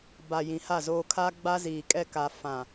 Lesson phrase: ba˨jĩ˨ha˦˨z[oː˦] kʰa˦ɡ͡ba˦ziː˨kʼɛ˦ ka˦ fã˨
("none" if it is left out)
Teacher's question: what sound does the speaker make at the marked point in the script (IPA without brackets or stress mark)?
oː˦